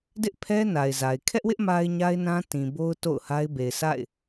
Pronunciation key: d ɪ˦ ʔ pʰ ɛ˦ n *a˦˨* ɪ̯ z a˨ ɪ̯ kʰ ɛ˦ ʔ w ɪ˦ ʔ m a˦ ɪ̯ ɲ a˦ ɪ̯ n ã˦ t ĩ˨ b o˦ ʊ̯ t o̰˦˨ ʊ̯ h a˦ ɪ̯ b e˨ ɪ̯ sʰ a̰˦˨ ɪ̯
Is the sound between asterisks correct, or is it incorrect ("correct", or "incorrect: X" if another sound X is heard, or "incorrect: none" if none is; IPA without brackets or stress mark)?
incorrect: a˨